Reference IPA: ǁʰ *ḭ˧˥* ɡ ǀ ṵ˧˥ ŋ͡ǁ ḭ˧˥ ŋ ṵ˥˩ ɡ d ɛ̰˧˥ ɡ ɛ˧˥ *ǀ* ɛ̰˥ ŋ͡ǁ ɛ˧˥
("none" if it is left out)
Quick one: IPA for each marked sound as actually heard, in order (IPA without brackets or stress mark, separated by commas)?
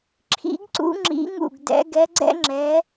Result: ḭ˧˥, ɡ͡ǀ